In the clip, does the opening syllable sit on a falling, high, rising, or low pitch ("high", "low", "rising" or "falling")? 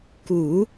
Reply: low